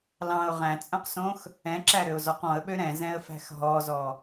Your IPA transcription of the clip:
l ɑ̃ ʊ̯ ʁ æ̃ t͡sʼ œ̃ q s õ x | ɛ̃ ǁ æ ɾ ø ʊ̯ z ɔ q ɔ̃ ə̯ ɓ ø ɾ ɛ̃ z ɛ̃ ə̯ f æ̤ x ɦ ɔ z ɔ

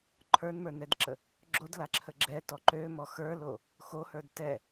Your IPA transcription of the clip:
ǃʰ ə˞ n m ə˞ n ɛ d ǁ ə | ɡ͡ǁ o d l a ǁʰ ə ɡ͡ǁ ɛ t ɔ ǃ ø m ɔ x ə˞ l o | x o h ə˞ d t ɛ

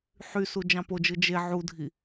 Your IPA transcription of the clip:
ħ y s u d͡ʒ ɑ̃ p o d͡ʒ ɯ d͡ʒ e ʕ u dʱ i

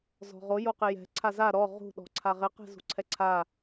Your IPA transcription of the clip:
z ɔ̤ ʁ o j o q ɪ j ɛ̤ ǀʰ a z a ɾ ɔ ʁ ṳ ɗ ɔ̤ ǀʰ a ʁ ɪ q ɛ̤ z ṳ ǀʰ ɛ ǀʰ a

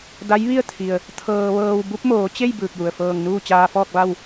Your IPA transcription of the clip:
d a˧˥ j ʋ i˥˨ ə̯ t̪ʰ i˩ ə̯ | t̪ʰ ɤː˧ ʋ ɤː˧ w b u˧˥ p̚ m oː˩˧ t͡ɕ e˥˨ j b ɯː˧˩ k̚ j u˩ ə̯ f ɤː˧˩ ŋ n uː˥˨ t͡ɕ aː˧ f ɔː˥˨ k̚ ʋ a˥˨ w

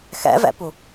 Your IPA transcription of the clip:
x ɛ̰ v ɛ̰ p u

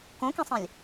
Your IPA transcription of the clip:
k õ k ĩ sˤ ɛ̃ lʲ

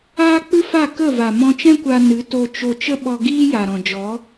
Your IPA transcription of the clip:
aː˦ k͡p ɨ˦ f a˦˨ k ə˦˨ v a˨ m ɔ̃˧ t͡ʃ ɛ̃˦ kʷ a˧ n ɨ˨˦ t o˧ t͡ʃ o˧ t͡ʃ ə˦ ɓ ɔ˧ ɡ iː˦ j a˨ ɾ ɔ̃˨ d͡ʒ ɔ˨˦

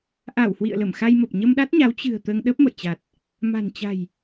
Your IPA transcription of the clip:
ʔ a˧˩ w h w ḭ˧˨ ə̯ l ə˧˩ m x a˧ j m ə˨˩ p̚ ɲ ə˧ m ɗ a˦˥ t̚ ɲ a˨˦ w t͡ɕ ɨ̤˨˩ ə̯ t̪ əː˧ ŋ ɗ ə˦˥ p̚ m ə̰˧˨ j t͡ɕ a˨˩ t̚ | m a̤˨˩ n t͡ɕ a̤˨˩ j

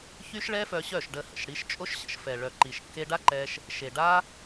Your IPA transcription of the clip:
ç y˦ ʃ ɭ ɛ˦ f œ˧ ɕ œ˦˨ ʃ ɖ ə˧ h ə̰˨ ʃ ɽ i˧ ʃ t͡ʃʼ o˦ ʃ ɕ ə̰˧ ʃ f ɛ˨ ɭ œ˨ ǃ i˨ ʃ kː e˧ ɖ a˦ ǃ ɛ˦ ʃ | ʃ e˨ ɖ a˦

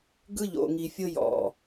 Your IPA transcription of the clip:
ɡ ɯ˦ ʎ o̰˨ ŋ i˨ fʲ ɤ˦ j ɔ̰˦˨

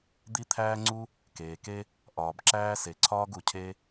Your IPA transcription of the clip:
d̪ i˥ t̪ʰ æː˥ ŋ͡ǀ u˥ | k eː˩ k e˥ | ʔ ɒː˩ b ǁ æː˥ s e˩ ǀʰ ɒː˥ ɡ u˩ cʰ e˥

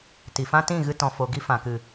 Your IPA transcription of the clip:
t i˨ f ã˦ t ĩ˦˨ ɣ ɨ˧ t ɔ̃˨ f o˨ ɡ i˧ f ã˨ k ɨ˨

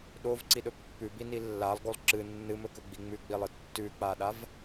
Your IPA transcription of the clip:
ɗ o v ǀ i ɗ ɵ pː ʉ b i n i lː a lˠ ɡ o lˠ ǁ ɨ nː ɨ m ɵ k ɵ ɡ͡b i ŋ͡m ʉ ɡ͡b i lˠ ɨ tː ʉ k͡p a ɗ a v

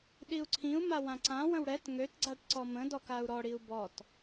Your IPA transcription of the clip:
ɗ i u̯ ǀʰ ĩ u̯ m a w ã ǀ ã w ə̃ w ɽ ɛ t ŋ ø t ɡ͡ǀ a ʈ ǀ ɔ m ə̃ d ɔ k a u̯ ɾ ɔ ɽ i u̯ b ɔ t

